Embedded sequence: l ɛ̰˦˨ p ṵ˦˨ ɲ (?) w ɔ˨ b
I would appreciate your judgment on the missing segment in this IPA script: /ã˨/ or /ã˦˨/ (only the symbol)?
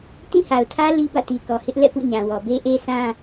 ã˨